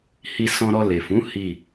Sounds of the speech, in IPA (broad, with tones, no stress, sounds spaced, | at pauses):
h i˧ s ɔ̃˧ ɾ ɔ˧ l e˨ f ũ˨˦ h i˦˨